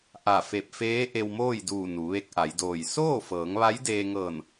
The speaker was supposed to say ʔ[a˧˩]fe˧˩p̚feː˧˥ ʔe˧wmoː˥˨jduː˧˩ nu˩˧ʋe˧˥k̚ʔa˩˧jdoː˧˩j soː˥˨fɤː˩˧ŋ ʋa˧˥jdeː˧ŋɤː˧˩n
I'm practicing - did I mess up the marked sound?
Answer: no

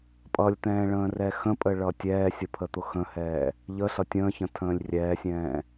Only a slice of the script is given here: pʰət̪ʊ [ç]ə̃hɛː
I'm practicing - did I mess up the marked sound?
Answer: yes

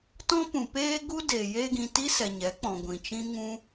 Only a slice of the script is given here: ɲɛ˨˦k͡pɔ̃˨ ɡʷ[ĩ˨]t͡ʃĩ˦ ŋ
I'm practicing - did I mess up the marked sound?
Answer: no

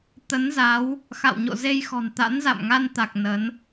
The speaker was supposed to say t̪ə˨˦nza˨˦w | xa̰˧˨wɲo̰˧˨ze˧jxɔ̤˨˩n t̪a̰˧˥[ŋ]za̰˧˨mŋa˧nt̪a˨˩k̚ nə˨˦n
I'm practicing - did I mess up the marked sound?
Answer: yes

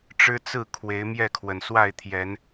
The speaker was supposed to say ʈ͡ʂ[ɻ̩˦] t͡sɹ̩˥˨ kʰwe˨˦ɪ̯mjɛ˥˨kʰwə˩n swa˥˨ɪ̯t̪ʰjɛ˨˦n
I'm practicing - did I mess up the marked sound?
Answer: no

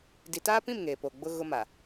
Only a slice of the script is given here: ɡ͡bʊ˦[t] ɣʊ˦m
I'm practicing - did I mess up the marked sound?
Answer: yes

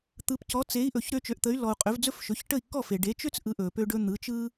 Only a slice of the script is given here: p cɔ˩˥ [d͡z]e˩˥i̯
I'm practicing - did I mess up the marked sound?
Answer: yes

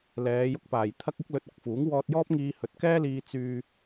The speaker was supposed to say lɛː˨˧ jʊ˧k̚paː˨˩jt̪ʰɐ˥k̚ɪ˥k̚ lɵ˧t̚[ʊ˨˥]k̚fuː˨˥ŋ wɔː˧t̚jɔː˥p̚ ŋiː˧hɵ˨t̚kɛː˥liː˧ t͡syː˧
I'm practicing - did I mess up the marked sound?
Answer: no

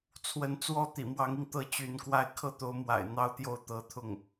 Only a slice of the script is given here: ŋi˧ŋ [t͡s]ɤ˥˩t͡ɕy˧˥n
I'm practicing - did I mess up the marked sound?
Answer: yes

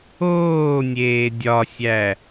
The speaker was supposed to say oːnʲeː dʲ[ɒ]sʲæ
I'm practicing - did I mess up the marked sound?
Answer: no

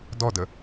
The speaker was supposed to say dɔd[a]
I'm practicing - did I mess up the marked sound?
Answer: yes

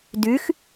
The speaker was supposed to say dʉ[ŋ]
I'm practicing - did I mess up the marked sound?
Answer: yes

